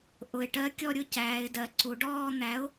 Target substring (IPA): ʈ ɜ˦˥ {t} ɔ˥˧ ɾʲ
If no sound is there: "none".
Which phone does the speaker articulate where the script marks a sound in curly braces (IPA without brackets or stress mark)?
kʲ